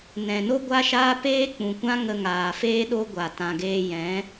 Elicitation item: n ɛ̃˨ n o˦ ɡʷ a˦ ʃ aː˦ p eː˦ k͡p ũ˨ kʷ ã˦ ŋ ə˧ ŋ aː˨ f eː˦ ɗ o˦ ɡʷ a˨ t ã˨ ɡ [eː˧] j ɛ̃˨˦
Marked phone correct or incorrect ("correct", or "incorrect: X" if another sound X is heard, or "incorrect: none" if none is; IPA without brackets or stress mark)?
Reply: correct